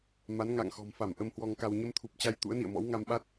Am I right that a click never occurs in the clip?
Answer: yes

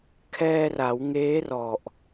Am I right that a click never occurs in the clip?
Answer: yes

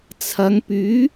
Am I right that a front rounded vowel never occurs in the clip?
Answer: no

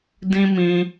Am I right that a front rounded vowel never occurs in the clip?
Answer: yes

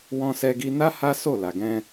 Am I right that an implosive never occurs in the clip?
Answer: yes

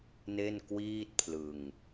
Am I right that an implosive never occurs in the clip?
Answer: yes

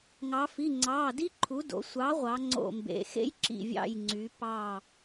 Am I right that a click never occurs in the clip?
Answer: no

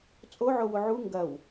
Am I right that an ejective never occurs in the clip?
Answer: no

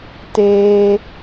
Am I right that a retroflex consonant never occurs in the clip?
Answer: yes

